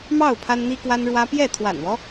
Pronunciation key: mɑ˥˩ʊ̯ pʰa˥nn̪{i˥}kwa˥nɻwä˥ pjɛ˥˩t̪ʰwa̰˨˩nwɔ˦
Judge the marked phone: correct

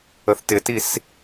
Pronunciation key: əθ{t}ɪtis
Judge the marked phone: correct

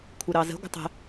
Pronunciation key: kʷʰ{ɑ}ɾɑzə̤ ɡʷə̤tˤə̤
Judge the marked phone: incorrect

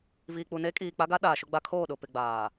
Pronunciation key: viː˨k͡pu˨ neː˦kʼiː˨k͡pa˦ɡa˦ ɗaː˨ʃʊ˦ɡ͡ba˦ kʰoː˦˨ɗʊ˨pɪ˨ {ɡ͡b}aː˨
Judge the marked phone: correct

